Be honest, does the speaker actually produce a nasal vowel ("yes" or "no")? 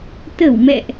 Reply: no